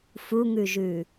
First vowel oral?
yes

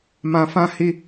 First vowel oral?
no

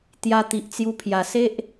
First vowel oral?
yes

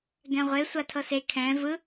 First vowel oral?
no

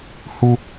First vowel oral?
yes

